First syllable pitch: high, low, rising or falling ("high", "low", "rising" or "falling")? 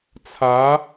rising